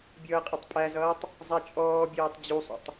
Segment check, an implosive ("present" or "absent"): absent